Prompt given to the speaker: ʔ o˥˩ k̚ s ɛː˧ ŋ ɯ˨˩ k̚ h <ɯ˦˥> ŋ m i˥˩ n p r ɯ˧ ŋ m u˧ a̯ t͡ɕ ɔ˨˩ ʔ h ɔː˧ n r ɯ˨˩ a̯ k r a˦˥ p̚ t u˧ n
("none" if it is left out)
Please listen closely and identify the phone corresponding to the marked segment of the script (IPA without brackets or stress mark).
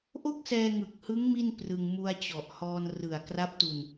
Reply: ɯ˦˥